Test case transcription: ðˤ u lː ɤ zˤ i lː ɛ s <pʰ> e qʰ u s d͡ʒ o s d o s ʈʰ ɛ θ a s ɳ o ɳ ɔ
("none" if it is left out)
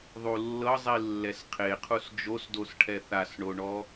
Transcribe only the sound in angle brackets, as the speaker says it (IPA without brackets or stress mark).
qʰ